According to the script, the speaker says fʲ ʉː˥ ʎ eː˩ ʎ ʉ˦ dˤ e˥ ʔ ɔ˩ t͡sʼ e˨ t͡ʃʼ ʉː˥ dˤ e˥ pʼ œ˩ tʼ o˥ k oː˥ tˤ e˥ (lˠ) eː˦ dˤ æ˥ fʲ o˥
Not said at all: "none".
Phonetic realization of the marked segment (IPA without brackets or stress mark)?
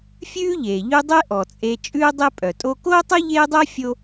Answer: ʎ